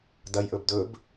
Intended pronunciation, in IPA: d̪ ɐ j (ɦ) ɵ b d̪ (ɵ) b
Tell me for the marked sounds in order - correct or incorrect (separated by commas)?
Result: incorrect, correct